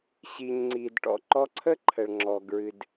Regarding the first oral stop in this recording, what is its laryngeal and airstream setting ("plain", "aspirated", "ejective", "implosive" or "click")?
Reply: click